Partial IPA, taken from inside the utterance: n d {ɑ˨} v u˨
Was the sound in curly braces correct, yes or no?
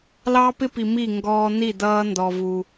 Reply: no